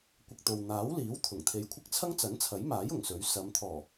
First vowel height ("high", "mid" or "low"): high